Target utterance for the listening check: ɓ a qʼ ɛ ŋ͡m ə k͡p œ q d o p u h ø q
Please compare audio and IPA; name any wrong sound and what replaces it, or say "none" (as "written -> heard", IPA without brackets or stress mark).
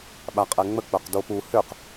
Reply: none